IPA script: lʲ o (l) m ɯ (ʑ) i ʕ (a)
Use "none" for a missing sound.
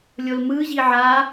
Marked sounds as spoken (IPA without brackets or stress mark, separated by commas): l, ʑ, a